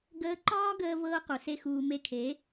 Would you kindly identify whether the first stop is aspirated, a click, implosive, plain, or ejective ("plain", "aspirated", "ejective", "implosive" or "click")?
plain